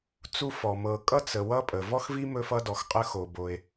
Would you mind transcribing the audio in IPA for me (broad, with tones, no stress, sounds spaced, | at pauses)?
t͡s u˥ f ɔ˩ m ɤ˩ kʼ ʌ˥ t͡s ə˩ w ʌ˥ pʼ ə˩ v ɔ˥ x v i˥ m ɵ˥ f ʌ˥ d ɔ˩ x qʼ ə˥ x o˩ b o˩ e̯